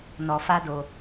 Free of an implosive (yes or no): yes